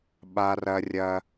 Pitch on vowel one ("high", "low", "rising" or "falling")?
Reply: low